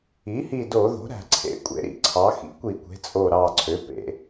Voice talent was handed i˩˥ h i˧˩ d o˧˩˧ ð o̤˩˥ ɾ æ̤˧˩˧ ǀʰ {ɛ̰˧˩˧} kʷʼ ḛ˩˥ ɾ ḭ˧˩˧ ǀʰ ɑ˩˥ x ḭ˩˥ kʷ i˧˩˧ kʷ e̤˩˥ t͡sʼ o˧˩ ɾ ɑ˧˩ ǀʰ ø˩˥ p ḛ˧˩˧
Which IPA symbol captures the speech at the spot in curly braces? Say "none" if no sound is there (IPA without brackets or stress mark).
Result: ḛ˧˩˧